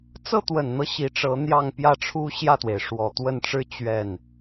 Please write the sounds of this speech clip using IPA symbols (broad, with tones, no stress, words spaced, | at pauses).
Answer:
t͡sɤ˥˩t̪wə˨˩nn̪ɤ˦ ɕi˧˥ʈ͡ʂɤ˧˥n̪jɑ˥˧ŋ pjä˥˩ʈ͡ʂʰu˥ ɕjä˥˩t̪we˩ɪ̯ʂwɔ˨˩ t̪wə˥˩nʈ͡ʂɻ̩˥ t͡ɕɥɛ˥˩n